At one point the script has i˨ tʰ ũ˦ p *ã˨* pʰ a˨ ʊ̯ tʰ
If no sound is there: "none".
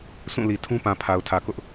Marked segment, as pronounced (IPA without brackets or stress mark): ã˨